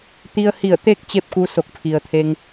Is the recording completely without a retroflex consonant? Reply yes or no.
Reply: yes